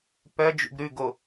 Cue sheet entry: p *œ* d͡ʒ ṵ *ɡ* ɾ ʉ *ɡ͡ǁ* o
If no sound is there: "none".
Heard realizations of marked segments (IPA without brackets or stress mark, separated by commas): œ, ɡ, ɡ